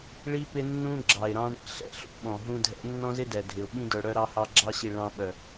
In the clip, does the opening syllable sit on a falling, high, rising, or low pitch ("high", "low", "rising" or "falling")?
high